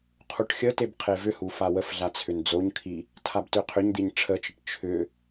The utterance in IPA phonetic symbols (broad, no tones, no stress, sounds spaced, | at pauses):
qʰ u ʈ xʲ ə t e b qʰ e v ʏ h u f a w ə f ɮ a t͡sʰ ʏ n d͡z o ɲ kʰ i | tʰ a b t ʏ qʰ ʏ ɲ d̪ i ɲ ʈ͡ʂʰ ə t͡ʃ ə ʈ t͡ʃʰ ʏ